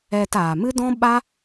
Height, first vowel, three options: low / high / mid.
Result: mid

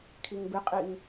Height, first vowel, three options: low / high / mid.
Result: high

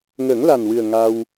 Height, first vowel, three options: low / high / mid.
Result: mid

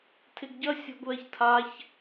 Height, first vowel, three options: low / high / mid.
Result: high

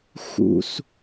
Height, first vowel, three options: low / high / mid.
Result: high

